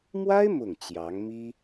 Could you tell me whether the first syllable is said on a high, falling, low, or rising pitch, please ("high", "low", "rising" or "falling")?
high